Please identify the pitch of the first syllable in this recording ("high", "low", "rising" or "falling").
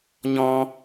high